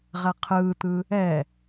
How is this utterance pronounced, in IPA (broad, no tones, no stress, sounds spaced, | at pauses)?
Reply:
ʁ ɛ qʰ ɯː t̪ ɯ | ɛ